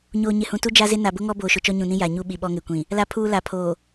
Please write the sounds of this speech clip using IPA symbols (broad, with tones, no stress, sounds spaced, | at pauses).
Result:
ɲ oː˨ ɲ ɪ˨ h ũ˨ t u˦ d͡ʒ a˦ z ɪ˦ n a˨ b ʊ˦ ŋ ɔ˦ b oː˨ ʃ ʊ˨ t͡ʃ ɔ˦ ɲ ũ˨ n ĩ˦ j a˨ ɲ u˦ ɓ i˨ ɓ ɔ˦ ŋ e˨ kʷ ĩ˨ | l a˨ pʰ uː˨ l a˨ pʰ oː˨